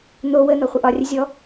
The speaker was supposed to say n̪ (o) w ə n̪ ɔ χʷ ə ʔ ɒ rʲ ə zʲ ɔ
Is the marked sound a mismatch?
no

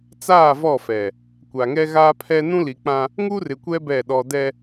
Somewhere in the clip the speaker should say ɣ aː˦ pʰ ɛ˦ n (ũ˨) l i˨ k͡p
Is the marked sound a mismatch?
yes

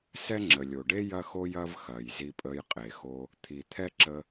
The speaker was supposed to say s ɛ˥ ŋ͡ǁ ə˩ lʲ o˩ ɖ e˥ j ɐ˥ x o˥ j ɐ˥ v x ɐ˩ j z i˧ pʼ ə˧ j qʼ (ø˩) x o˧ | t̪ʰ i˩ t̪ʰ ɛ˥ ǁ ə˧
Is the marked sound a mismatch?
yes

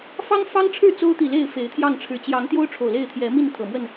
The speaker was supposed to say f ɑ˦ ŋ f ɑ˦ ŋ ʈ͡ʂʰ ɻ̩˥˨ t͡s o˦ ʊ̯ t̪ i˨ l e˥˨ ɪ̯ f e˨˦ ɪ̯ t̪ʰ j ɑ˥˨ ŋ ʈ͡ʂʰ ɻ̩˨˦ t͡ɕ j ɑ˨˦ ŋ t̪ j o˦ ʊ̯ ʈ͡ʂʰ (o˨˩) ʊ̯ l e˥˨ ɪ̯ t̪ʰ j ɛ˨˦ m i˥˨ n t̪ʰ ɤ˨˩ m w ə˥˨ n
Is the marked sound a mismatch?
no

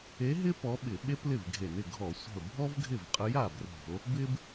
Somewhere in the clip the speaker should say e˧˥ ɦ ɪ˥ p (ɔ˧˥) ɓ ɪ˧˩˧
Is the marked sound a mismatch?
no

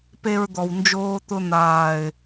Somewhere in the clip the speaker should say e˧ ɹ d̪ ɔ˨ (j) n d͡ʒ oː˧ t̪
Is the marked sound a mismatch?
yes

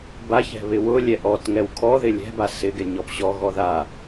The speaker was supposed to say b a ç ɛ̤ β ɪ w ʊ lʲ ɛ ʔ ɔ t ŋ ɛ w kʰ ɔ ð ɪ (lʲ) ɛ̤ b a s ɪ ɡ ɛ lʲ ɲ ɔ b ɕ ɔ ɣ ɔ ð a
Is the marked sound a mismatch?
no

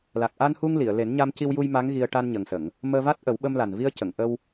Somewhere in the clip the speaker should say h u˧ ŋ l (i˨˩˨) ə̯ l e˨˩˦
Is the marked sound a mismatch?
no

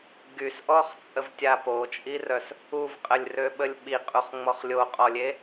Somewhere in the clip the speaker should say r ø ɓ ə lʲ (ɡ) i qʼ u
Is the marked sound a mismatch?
yes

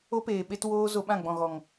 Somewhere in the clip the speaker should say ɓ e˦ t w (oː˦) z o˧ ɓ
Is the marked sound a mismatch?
no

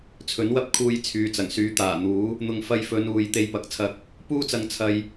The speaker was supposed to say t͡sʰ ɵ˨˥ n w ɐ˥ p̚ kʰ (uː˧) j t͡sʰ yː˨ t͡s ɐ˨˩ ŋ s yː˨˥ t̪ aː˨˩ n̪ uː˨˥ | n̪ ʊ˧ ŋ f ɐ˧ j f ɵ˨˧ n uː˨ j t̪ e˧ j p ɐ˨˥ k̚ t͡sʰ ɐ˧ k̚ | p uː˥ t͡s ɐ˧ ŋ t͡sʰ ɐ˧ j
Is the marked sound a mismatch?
no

